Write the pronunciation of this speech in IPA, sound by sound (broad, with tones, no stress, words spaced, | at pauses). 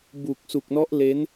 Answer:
bu˨˩k̚ su˨˩k̚nɔ˦˥ʔ le˦˥n